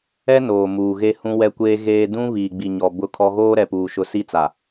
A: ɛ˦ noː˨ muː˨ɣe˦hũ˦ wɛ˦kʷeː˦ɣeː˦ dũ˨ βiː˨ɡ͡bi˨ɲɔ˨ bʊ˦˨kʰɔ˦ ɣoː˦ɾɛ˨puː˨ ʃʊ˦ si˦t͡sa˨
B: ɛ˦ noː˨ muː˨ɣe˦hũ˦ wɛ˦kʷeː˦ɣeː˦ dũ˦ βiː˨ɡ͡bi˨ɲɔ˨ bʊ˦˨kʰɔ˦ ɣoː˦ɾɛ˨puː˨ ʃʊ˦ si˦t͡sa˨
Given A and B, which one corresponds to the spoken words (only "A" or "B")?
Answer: B